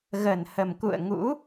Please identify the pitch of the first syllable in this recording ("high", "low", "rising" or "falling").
low